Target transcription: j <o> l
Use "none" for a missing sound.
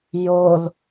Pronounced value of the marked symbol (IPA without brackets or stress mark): o